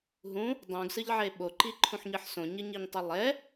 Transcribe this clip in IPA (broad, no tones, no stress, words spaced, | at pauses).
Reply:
ɦũ | dˤũɡsɯʎʕe ɓoǃiǃʰũħɲɯħ sõɲɯɲiɲtˤɯ lˠɛ